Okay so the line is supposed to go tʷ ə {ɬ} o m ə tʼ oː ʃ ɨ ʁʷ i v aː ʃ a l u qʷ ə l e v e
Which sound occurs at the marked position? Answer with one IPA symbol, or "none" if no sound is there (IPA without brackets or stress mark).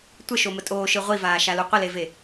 ʃ